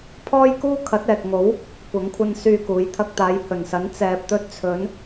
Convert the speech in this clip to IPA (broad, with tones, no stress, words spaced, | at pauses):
pʰɔː˥jkuː˥ kʰɐ˨˥t̚ɛː˨k̚ŋo˨˥w | kʷɐ˨˧ŋkʷʰɐ˧n syː˧kuː˨˧j t̪ʰɐ˧k̚t̪aː˨˧jhɵ˨˩nsɐ˨˥n t͡sɛː˨p̚t̪ɵ˧t̚ t͡sʰɵ˨˧n